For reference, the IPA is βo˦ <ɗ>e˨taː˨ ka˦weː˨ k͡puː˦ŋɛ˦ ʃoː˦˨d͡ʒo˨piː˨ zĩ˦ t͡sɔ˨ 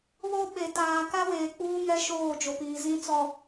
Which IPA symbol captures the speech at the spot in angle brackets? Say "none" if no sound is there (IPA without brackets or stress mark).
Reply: ɓ